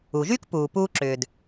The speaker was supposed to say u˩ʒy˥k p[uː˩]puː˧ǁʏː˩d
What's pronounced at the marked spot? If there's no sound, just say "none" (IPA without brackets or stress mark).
uː˩